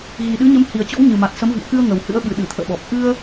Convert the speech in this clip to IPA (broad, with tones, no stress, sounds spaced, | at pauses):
ɣ i˨˩ ɗ ɨ˨˦ ɲ ə˨˦ m h i˨˩ ə̯ t͡ɕ ɔ̰˧˥ w ɲ ɨ˨˩ m a˨˩ t̚ s ə˨˦ m v ḭ˧˨ ə̯ k ɨ˧ ə̯ ŋ ə˨˩ w h ɨ̰˧˥ ə̯ ɓ ɨ˨˩ ɗ ɨ˧˩ t̪ʰ ə̰ː˧˨ ɓ ɔ˨˩ p̚ ʔ ɨ˧ ə̯